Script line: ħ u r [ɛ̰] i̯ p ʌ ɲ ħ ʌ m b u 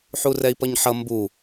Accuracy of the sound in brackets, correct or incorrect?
incorrect